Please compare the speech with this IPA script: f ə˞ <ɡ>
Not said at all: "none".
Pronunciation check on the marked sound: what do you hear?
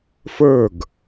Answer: ɡ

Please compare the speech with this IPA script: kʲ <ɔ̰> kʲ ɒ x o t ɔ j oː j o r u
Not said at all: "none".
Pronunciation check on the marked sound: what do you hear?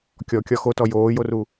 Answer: ɔ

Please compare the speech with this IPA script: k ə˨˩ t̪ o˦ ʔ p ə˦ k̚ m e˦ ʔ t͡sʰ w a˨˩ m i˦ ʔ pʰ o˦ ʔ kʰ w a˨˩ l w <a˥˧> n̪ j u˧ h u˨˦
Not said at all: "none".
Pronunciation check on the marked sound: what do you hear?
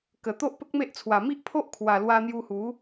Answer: a˧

